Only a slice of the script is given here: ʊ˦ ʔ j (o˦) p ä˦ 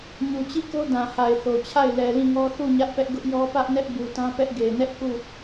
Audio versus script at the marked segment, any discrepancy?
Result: yes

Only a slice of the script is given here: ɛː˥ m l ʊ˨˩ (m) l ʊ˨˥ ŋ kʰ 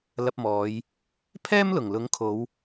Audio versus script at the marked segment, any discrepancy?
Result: yes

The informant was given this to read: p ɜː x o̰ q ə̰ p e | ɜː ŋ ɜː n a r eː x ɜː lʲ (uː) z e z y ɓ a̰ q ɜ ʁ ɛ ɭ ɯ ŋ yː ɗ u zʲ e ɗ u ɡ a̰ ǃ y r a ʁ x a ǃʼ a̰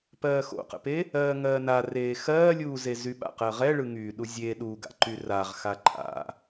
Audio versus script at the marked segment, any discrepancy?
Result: no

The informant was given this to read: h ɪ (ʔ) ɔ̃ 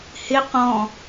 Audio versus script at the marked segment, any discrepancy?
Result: yes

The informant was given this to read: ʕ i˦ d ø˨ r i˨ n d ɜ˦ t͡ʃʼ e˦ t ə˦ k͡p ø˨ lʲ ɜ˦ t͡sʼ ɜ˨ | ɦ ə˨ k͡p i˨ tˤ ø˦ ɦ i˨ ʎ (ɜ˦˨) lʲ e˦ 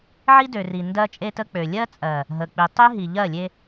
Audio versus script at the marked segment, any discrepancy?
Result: no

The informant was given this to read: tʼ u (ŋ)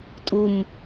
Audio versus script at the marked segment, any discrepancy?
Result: yes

